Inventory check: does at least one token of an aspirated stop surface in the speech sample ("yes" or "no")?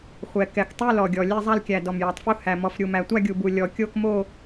no